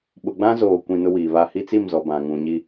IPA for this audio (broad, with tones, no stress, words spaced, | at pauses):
ɓʊ˨ɡ͡bã˦zoː˨kʷĩ˨ nʊ˦wiː˨βa˦ hi˦t͡si˦˨mzɔ˨ bã˨ŋũ˨ɲi˦